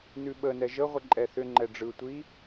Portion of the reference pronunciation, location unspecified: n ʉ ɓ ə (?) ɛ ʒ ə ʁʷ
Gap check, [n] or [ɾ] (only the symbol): n